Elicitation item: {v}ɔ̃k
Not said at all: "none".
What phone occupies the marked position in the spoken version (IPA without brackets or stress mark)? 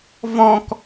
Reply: v